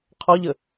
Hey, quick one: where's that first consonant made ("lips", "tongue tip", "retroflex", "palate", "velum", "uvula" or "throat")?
uvula